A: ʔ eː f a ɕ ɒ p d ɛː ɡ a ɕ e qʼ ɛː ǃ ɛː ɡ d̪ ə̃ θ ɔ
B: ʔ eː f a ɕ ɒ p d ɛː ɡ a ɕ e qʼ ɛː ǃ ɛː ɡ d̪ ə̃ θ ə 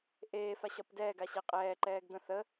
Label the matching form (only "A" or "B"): B